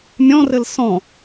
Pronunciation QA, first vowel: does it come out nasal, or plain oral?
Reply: nasal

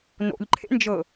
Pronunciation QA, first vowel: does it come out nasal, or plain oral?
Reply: oral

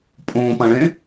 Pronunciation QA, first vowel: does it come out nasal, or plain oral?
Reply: nasal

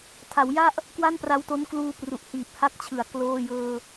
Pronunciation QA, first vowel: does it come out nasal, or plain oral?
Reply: oral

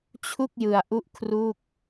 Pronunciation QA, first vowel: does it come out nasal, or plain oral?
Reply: oral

